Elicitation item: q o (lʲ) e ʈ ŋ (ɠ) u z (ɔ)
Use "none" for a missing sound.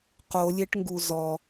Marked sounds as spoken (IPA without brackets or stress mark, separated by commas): lʲ, ɡ, ɔ